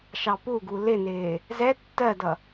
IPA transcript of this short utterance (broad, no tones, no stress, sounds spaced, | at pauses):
ʃ ɑ p u ɡ u l ɪ n ɪː | z ɛ tː ɜ d ʌ